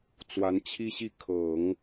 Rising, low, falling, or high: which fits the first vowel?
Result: rising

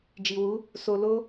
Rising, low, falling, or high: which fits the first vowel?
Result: low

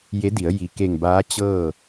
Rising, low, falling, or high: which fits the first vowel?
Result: rising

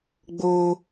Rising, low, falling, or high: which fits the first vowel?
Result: high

